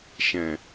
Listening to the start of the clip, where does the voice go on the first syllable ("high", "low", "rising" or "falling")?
low